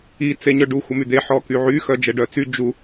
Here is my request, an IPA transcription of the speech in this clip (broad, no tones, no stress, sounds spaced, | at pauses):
i t͡s e ɲ œ ɖ u xʷ ə m y d̪ e ħ ɔ k y ʕ y x œ d͡ʒ ɛ ɖ œ t͡s y d͡ʒ u